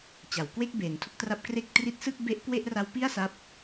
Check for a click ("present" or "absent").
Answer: absent